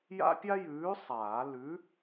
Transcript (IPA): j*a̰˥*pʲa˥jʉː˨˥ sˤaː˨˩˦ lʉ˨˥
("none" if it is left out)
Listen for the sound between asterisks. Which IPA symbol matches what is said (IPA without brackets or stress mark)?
a̰˥